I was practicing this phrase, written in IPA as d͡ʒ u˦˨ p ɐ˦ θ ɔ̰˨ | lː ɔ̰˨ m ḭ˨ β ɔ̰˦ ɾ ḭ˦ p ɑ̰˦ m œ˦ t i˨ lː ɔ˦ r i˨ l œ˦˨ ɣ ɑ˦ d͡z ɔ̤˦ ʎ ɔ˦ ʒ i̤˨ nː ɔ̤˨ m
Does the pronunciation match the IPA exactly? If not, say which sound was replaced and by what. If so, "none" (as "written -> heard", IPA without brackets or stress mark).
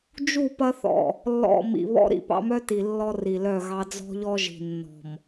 none